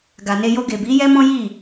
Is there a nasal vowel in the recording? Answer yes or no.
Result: yes